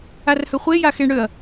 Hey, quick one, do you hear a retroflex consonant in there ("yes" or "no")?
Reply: yes